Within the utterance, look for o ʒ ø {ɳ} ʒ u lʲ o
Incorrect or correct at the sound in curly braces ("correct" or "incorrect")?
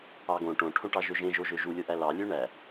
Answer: incorrect